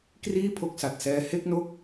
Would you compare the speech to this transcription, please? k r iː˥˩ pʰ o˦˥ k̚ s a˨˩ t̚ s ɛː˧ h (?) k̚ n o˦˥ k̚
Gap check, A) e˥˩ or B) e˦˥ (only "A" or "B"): B